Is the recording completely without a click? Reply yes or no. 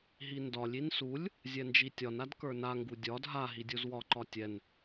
no